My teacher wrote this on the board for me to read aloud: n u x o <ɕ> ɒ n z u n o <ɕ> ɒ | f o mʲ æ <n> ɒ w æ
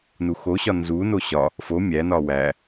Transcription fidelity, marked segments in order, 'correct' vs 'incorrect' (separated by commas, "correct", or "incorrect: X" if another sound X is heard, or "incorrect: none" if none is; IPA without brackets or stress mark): correct, correct, correct